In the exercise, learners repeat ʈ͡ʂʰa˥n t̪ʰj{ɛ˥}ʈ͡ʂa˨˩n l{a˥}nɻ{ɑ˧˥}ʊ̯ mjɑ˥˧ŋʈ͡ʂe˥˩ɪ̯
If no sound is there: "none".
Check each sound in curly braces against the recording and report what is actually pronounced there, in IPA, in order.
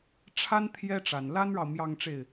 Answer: ɛ˥, a˥, ɑ˨

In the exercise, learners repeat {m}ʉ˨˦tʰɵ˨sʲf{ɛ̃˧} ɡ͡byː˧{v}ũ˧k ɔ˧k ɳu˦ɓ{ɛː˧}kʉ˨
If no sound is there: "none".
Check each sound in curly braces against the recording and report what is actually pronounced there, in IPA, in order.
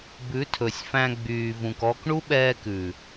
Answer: b, æ̃˧, v, ɛː˧

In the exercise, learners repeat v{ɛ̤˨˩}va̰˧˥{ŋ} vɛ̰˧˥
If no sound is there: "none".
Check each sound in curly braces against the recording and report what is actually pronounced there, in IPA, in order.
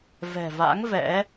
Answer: ɛ̤˨˩, ŋ

